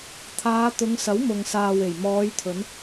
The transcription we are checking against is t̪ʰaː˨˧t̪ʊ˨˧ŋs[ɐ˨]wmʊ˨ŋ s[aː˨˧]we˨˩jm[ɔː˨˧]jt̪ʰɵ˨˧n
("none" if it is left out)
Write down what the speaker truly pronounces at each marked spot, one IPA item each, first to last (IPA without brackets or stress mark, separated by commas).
ɐ˨˥, aː˨, ɔː˨˧